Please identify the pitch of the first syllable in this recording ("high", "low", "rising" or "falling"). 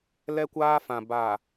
high